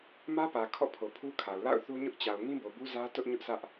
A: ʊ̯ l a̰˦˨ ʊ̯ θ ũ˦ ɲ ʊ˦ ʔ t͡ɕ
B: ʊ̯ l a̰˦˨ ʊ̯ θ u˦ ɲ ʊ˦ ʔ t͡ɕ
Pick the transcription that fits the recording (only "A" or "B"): B